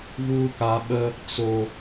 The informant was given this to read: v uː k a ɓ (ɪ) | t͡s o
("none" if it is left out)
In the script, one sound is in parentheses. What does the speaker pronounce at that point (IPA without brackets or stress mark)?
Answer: ə